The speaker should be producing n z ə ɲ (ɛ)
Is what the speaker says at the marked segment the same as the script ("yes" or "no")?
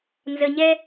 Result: yes